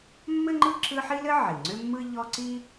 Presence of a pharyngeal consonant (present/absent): present